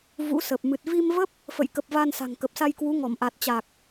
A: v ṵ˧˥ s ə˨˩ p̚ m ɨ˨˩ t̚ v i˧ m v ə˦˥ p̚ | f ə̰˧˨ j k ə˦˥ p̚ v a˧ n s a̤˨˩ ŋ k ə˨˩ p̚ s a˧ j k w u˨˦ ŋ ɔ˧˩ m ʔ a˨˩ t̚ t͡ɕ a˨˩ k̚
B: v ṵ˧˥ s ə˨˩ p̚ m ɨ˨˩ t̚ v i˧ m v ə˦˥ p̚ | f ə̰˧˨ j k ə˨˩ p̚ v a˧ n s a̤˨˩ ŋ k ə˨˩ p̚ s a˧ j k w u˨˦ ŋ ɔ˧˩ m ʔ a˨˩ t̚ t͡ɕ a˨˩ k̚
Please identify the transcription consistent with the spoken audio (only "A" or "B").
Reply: B